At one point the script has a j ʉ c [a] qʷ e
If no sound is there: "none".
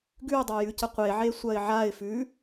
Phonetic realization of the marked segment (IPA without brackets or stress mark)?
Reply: ə